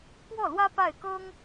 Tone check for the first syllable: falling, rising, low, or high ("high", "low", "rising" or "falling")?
falling